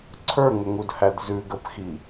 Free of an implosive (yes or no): yes